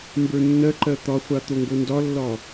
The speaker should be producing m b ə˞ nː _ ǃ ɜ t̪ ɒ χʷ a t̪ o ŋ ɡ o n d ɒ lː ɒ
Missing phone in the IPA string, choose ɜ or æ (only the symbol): ɜ